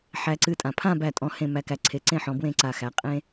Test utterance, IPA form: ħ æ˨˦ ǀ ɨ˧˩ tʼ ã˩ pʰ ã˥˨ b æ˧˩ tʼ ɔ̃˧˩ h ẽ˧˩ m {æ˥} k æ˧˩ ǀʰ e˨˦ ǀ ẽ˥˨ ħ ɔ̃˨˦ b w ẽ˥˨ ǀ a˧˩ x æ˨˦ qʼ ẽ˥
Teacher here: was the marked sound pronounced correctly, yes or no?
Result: no